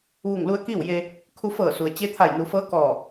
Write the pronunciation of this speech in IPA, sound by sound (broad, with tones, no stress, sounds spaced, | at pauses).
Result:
ʋ u˧˩ ŋ l u˧ ə̯ k iː˥˨ w j e˧ | kʰ u˧ f ɤː˧˩ s u˩ ə̯ t͡ɕ e˧˥ t̪ʰ a˧˩ j n u˩˧ f ɤː˧˥ k ɔː˧˩